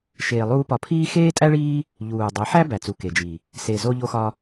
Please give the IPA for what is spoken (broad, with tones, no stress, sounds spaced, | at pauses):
ʃ eː˧ lˠ uː˦ p ɒ˧ pʰ iː˦ x eː˦ tʼ æ˦ ɭ iː˦ | ʎ uː˨ dˤ e˨˦ ħ æ˦ b æ˨ t͡s u˨ k e˨ d͡ʒ i˨ | s e˨ z o˧ ʎ o˧ x ɒ˧